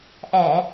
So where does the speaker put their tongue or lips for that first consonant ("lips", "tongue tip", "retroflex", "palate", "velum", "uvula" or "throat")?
throat